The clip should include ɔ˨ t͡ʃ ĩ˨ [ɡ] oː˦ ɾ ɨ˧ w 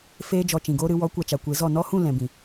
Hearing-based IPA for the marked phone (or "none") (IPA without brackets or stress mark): ɡ